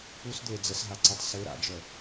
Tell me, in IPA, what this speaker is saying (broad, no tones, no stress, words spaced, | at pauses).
pusd̪øe̯ d͡zəsɦaǀœtˤ se ɾa̰d͡ʒœ